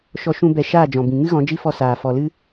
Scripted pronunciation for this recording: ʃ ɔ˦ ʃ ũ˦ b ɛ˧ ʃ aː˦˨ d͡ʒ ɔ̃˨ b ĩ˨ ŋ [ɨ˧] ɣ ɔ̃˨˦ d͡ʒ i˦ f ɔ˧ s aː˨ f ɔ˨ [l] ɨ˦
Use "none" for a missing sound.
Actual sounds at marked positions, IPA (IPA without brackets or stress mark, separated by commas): ɨ˦, l